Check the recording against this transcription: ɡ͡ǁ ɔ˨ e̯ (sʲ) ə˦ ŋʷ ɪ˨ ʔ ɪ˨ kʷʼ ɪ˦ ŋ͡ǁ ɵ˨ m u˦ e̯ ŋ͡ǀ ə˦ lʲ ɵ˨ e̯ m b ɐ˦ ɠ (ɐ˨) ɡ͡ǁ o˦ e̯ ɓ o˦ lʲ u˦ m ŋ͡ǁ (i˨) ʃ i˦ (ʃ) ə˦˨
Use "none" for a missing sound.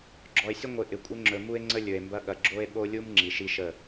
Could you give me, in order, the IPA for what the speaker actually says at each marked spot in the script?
sʲ, ɐ˨, i˨, ʃ

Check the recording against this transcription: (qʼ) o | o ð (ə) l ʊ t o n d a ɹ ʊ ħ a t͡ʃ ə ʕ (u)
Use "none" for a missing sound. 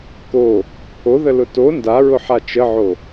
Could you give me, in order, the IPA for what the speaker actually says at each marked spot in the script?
k, ə, o

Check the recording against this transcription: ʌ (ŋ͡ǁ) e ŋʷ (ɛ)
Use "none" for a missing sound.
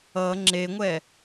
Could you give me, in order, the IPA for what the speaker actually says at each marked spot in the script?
ŋ͡ǁ, ɛ

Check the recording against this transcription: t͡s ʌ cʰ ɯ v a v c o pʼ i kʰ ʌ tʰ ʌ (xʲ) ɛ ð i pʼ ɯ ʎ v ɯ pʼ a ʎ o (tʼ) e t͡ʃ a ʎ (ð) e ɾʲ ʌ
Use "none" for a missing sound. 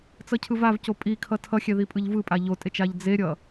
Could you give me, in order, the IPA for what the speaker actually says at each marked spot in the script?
xʲ, tʼ, d͡z

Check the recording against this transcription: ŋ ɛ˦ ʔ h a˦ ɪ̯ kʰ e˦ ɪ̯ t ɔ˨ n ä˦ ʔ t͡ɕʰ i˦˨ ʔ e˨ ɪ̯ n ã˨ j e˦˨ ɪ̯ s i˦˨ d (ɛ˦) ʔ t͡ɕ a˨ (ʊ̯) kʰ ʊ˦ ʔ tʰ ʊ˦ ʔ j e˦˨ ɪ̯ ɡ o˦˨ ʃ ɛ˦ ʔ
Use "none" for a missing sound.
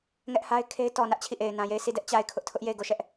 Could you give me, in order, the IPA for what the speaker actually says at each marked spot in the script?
ɛ˦, ɪ̯

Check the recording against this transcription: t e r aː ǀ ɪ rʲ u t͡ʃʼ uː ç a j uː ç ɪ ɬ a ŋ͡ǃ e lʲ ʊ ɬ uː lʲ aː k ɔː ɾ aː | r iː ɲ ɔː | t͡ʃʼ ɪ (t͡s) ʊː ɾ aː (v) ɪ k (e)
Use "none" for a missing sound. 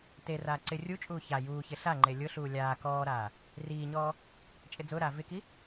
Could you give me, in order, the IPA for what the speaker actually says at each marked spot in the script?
d͡z, v, i

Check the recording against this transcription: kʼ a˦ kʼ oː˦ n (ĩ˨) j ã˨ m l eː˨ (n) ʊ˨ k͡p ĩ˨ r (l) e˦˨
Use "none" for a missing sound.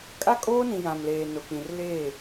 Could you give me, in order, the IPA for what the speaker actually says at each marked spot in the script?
ĩ˨, n, l

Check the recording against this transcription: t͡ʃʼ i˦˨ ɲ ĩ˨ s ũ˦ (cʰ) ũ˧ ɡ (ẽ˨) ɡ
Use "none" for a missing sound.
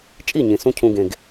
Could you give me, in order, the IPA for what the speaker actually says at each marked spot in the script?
cʰ, ẽ˨

